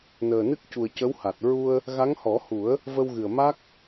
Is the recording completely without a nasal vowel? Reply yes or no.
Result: yes